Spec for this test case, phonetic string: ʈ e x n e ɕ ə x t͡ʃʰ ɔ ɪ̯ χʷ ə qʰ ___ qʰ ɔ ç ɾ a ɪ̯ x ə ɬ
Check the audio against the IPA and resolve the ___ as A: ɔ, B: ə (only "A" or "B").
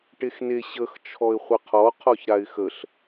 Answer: A